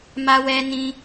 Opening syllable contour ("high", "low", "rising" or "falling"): high